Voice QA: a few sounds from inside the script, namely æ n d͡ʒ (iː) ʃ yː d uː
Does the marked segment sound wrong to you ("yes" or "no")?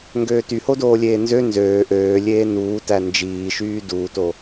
no